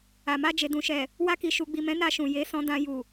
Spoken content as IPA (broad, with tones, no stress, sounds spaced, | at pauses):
a˨ m a˧ d͡ʒ e˨ d ũ˨ ʃ ɛ˨ | w a˧ k i˨ ʃ u˨ ɡ͡b i˨ m ɛ̃˨˦ n a˦˨ ʃ ũ˨ j e˨˦ s ɔ̃˧ d ã˧ j u˨